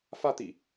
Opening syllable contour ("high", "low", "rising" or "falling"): high